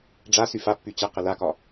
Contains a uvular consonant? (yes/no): yes